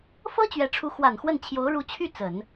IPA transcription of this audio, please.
f ɤ˥ t͡ɕ ɥ ɛ˧˥ ʈ͡ʂʰ u˧˥ x w a˨˩ n x w ə˥˩ n t͡ɕʰ j o˧˥ ʊ̯ ɻ u˧˥ t͡ɕʰ y˥˩ t͡s ə˨˩˦ n

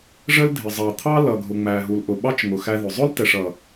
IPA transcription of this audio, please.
ʐ ə˦ l dʱ ɪ˨ zˤ ɑ˨ t̪ʰ ɑ˦ l ʌ˨ ɡʱ ʊ˨ ŋ͡m æ˨ ɦ u˨ l ʔ ʊ˨ ɓ ɑ˦ t͡ʃ ŋ ʊ˨ x æ˦ ð ʊ˨ zˤ ʊ˦ l t ɛ˨ ʂ ʌ˨

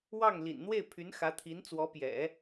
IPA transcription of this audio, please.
w ɑ˥˩ ŋ l ḭ˨˩ n n̪ w e˥˩ ɪ̯ pʰ y˧˥ n x ä˧˥ t̪ʰ i˧˥ n t͡s w ɔ˧˥ p j ɛ̰˨˩˦

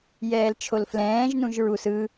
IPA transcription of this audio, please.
j ɛː l t͡ʃʰ o l f l ɛ̃ː ʒ n ũ ʒ ɹ u s ɯ

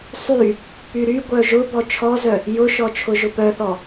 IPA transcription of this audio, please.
sˤ y | p y ɾ y ɡʷ œ ʒ ʊ b ɔ t͡ʃʰ ɔ z œ | j ʊ ʃ ɔ t͡ʃʰ ʊ ʒ ʊ p œ θ ɔ

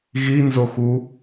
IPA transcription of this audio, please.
ɣ i n z o x u

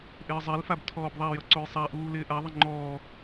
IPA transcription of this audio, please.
ʔ ɪː zˤ ɛ l f a b tʰ ɔː b ðˤ a j ʌ ǀ o j sˤ a ʔ uː l ɪː ʔ a ðˤ ɪ ŋ͡ǃ ɔː

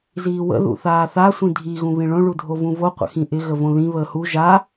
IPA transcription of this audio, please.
z iː w ə̰ ð ṵ θ aː θ a sʷ ĩ dʱ i ɣ ũ β ĩ ɭ õ ɭ u dʱ o v ũ v o qʷ ə̰ x ĩ ʔ ɪ ɣ ə v õ ð ĩ β əː h u ʒ a

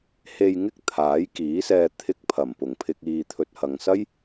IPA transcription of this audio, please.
h e˧ j ŋ ɪ˥ k̚ t̪ʰ aː˨˥ j k iː˨˥ s ɛː˧ t̪ʰ ɪ˧ k̚ pʰ ɐ˨˩ m p ʊ˨˩ ŋ pʰ ɪ˧ k̚ iː˨ t̪ʰ ɵ˨ t̚ h ɐ˨ ŋ s ɐ˥ j

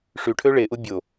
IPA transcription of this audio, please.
ʂ y ʈʰ ø ɭ e ʔ u bʲ o

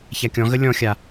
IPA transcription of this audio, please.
ç a kʲ ɔ̃ ɣ ə lʲ ɔ̃ xʲ a

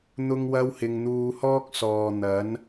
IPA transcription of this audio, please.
n̪ ʊ˥ ŋ w ɐ˥ w h ɪ˧ ŋ n̪ uː˧ h ɔː˥ k̚ s ɔː˨ n̪ ɐ˨˥ n

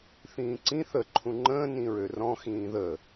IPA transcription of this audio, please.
θ ĩː ǀ ĩ θ ə ǃʰ ũ ŋ͡ǃ ə̃ː n ĩ ɹ ø r ɔ̃ x ĩː ð ə

